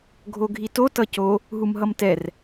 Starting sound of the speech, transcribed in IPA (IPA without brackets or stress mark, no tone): ɡʱ